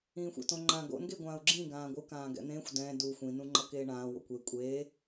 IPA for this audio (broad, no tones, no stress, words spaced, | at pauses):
ĩːxʷɛ̰tõŋ͡ǃã ɡo̰nɡeɡʷãːu̯ ɡ͡ǁĩ ɡãːɡʷɯkãːɡɛ̰ n̪ẽxʷ dɛ̃ du xʷĩnũ ŋ͡ǃʌkeːɳãː wo̰kʷe kʷʼeː